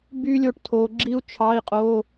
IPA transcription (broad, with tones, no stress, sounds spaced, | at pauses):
b y˧ lʲ o˧˩ ʈ tʰ oː˩˧ ɡ͡ǁ i˧ u̯ t͡ʃʰ ɑ˩˧˩ i̯ qʼ o˩˧˩